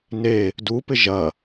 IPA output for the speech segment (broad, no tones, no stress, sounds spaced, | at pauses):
n e | d u p ɪ ʒ ɐ